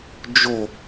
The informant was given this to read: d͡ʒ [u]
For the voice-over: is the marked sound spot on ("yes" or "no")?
no